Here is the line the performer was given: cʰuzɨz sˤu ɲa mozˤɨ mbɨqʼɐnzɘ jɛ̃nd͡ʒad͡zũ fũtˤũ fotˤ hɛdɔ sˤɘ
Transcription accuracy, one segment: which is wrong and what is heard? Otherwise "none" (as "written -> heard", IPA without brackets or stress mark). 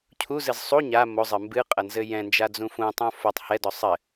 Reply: none